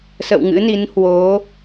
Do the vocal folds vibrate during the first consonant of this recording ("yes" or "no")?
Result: no